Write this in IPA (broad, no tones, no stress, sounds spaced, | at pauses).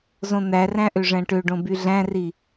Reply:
z õ n̪ æ r æ̃ ʔ ø ʐ æ̃ ʈ ø ɖ õ b y ɮ æ̃ r i